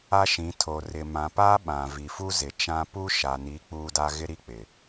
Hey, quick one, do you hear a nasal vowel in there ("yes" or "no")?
yes